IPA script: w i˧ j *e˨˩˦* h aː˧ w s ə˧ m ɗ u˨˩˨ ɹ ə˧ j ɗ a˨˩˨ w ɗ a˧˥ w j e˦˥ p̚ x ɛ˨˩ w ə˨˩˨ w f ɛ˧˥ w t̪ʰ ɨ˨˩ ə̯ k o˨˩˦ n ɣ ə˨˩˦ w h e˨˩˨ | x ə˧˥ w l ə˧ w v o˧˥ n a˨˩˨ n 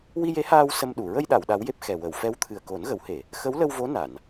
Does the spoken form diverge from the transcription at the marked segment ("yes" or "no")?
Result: yes